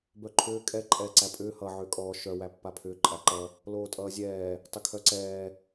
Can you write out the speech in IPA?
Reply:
bœǃʰʏː kʼɛ ǃʼɛːǀæpʼʏː hʌ ʕʏːkʼɔː ʃœ wæpːapʰʏː ǃʼæǃʌ | loːtʼʌːzʲɛː | tˤʏkʰœǀɛː

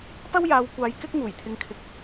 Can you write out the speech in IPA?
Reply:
pɐ˥wjaː˨˧w kʷaː˧jkɪ˥k̚ ŋuː˨˩jt̪ʰɪ˨˧ŋkʰɪ˨k̚

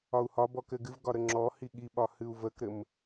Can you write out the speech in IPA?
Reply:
ɒu̯hɒbɔ kɘɡɨvɡɒ ɾəŋ͡ǁɔhi ɠiɓɒ hɨu̯vəkɾɘm

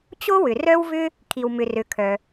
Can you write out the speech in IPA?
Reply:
t͡ɕo˥wʏ˩ rœ˥wvʏ˥ | kʰi˩wmʏ˩rø˩ kʰœ˩

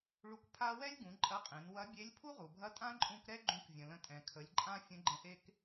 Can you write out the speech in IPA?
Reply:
ɭu˧k pʰa˥ wɛ˥lʲɡũ˩˧ ǃʼɐ˧˥qʼẽ˩˧n wɐ˧˥bʲe˧˥lʲ pʰu˥ʁu˩bʱɐ˧˥ tʼã˥ǃʼũ˧kɾɛ˥ ɡ͡ǃũ˧˥kvʲə̃˩ lə̃˧tʼɛ̃˩kʰə˩˧lʲǃʼã˥ fʲə̃˧˥ɡ͡ǃə̃˧ʔe˥k

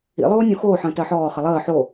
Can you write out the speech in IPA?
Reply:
ḭ lˠoːnʲõxoː ħə̃ːtɜħɔː χəlˠəː ħo

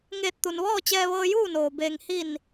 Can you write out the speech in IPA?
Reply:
ŋeː˧˩t̚t̪u˩nʋɔː˥˨ t͡ɕɛː˧ʋɤː˧juː˥˨noː˩ beː˩ŋhi˧˩n

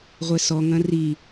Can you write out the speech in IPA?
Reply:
ʁʷɛsɔ ŋɐ̃ri

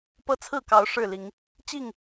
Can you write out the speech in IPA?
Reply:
pɤ˦t͡sʰɹ̩˥˨kɑ˨˦ʊ̯ ʂɻ̩˥˨li˨˦ŋ | t͡ɕi˥˨ŋ

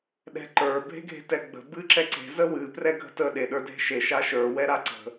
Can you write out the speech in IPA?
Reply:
ɗɛ̤ǃə˞ bʱe̤ɡʱe̤tɛɡ͡bə̤ bɨǁɛǀe̤ zəwɨ prɛɡʱə̤tə ɗeɗə˞dʱe̤ʃe ʃaʃə˞ wɛɾaǀə̤

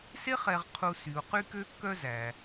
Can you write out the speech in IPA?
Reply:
se˦χɛ˨ʁqʰu˨ sy˩u̯ qy˥kø˥kːœ˥zæ˩

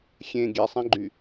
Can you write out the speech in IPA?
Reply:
xʲẽ ɡʲesˤẽɡ͡ǃy

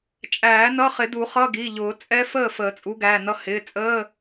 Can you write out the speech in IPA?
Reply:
t͡ʃʼæː˨˩˦nʌ˧˥˧χɪ˨˩˦du˨˩˦ χʌ˧˥˧ɡi˩˧˩ʎʊː˨˩˦ t͡sʼɛ˦˥fəː˥˨ fəː˨˩˦t͡sʼu˨˥ɡæː˩˧˩nʌ˦˥ hɪː˩˧˩t͡sʼəː˧˥˧

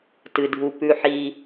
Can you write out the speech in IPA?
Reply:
tɨ˩dʱu˩ pʉ˩ħi˩

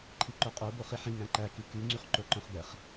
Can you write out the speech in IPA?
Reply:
ǃʰiǃoqʼo boχiħĩ ŋæ̃ǃæ kiky ŋ͡ǀyχǃoǃœ̃χbɛχ

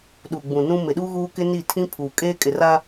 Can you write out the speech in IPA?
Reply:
ɗu˨ɡ͡bũ˨nũ˦ mɪ˨ɗu˦ɣuː˦kɪ˦ ni˦˨tʰĩ˦pʰuː˨ kʼeː˦kʼɪ˨ ra˦

